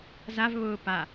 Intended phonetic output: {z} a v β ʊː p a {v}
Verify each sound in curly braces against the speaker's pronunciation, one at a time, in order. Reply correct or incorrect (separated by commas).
correct, incorrect